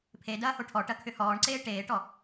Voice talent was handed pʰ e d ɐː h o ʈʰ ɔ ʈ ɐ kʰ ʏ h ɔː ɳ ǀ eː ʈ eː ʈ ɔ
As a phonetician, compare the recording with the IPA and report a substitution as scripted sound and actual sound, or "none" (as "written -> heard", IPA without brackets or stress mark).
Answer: none